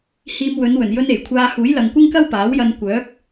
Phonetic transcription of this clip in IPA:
h iː˧ m w ɵ˨˧ n w ɵ˨˩ n j ɵ˧ n e˨˩ j kʷʰ aː˧ h uː˨˥ j l ɐ˨ ŋ kʷ ɪ˥ ŋ k ɐ˥ w p aː˨˥ w j ɐ˧ n kʷ œː˨˥ p̚

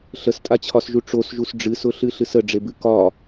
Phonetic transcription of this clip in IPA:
ɬ ə s tʼ a t͡ɕʰ ɒ s ʒ u ʈ͡ʂ o s ʒ u s ɖ͡ʐ ɨ s ʊ ɬ ɨ ɬ ɨ s ə ɖ͡ʐ e b ɨ k ɒ

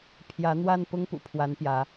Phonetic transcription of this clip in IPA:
pʰ j ä˨˦ n̪ w a˥˨ n p ʊ˦ ŋ p ṵ˨˩ pʰ w a˨˦ n p j ä˨˦

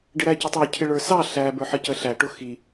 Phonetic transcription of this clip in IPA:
ɖ ɪ ɾ æ c ɪ tˤ ə˞ cʰ ɪ ɭ ə˞ s ɑ ɬ æ b ə˞ ħ ə c ə ɬ æ ʈ ʊ x i

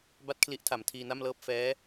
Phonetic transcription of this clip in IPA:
b a˥˩ t̚ kʰ l i˦˥ ʔ tʰ a˩˦ m tʰ iː˧ n a˥˩ m l ɤː˥˩ p̚ f ɛː˦˥

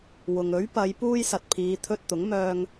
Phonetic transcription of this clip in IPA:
w ʊ˨ ŋ ɵ˨˥ ɥ p ɐ˨˧ j p uː˧ j s ɐ˨ t̚ pʰ iː˨˧ t̪ʰ ɵ˧ t̚ t̪ ʊ˨˥ ŋ m œː˧ ŋ

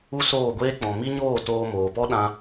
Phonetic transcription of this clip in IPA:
u˦ s oː˦˨ ɡʷ eː˦ k͡p ɔ̃˨ m i˦ ɲ oː˦˨ t oː˧ m oː˨ p ɔ˦ ɗ ã˦

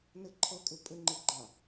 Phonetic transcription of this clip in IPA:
n ə ǃʰ ʌ kʼ ɵ pʼ ə ŋ͡ǃ e ɡ͡ǃ ã

